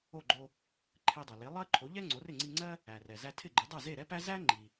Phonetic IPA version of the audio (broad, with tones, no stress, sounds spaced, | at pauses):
o˥˩ ɡ͡ǃ o˧ | ǃʰ e˧ dˤ ɜ˩ l e˩˥ lˠ ɜ˥ ǃʰ o˩˥ ʎ ɛ˥ ŋ͡ǀ o˩˥ r ɪ˥˩ ŋ͡ǀ i˧ ŋ͡ǀ ɜ˥ | æ˩ r ɛ˩ z æ˧ tʰ ɪ˥˩ ɡ͡ǃ ɪ˩˥ dˤ ɛ˥˩ z e˥˩ ɾ ɛ˥ p æ˥ z æ˥ ŋ͡ǃ i˩